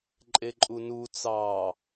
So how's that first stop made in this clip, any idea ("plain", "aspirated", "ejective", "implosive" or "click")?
click